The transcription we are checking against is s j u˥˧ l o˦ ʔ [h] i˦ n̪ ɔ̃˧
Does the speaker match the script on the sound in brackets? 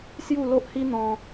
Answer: yes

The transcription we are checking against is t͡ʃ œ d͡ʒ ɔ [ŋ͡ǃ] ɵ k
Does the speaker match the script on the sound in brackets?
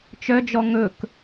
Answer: no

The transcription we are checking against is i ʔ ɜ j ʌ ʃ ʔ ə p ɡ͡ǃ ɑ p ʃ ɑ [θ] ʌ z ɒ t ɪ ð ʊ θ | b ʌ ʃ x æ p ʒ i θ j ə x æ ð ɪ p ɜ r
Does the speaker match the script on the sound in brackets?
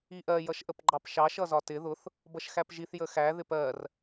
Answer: no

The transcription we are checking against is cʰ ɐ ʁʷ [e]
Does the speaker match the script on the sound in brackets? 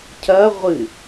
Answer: no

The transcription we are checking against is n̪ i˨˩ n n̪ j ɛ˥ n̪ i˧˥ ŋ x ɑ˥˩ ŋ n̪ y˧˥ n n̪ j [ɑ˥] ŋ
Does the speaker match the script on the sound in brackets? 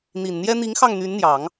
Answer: no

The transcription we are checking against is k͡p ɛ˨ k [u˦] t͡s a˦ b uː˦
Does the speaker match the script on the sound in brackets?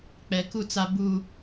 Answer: no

